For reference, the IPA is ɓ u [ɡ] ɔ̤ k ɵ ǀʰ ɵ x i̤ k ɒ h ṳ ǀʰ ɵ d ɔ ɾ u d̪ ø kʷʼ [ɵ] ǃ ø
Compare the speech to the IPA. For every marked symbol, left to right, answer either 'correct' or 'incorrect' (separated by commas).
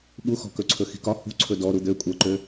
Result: incorrect, incorrect